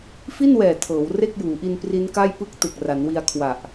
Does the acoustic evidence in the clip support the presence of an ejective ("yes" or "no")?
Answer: no